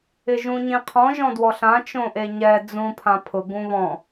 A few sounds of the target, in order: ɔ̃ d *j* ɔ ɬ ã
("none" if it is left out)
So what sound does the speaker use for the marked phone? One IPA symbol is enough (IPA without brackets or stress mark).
w